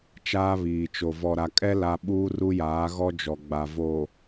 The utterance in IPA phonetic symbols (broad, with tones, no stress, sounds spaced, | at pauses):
t͡ʃ aː˦ β iː˨ t͡ʃ o˨ v ɔ˨ ɾ a˨ kʼ ɛ˦ l a˦ ɓ uː˦ r u˦ j aː˨˦ ɣ ɔ˦ d͡ʒ ɔ˨ ɡ͡b a˨ v o˨